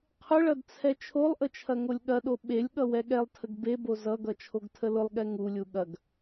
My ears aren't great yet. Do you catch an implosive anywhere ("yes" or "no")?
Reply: yes